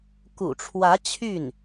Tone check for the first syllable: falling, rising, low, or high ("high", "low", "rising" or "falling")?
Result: low